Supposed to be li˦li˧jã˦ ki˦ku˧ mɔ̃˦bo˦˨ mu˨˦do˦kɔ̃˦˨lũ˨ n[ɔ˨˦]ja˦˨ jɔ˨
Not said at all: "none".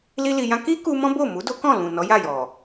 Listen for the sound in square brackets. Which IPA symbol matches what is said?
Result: ɔ˨˦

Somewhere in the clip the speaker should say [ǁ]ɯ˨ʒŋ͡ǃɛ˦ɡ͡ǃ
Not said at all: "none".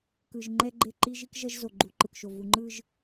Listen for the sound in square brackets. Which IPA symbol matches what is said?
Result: k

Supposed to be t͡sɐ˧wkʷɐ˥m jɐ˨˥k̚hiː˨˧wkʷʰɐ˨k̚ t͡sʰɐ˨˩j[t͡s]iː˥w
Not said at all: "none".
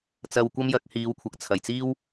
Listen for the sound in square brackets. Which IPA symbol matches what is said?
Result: t͡s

